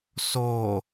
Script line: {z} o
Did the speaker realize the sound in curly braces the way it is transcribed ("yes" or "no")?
no